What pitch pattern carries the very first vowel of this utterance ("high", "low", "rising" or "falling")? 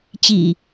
low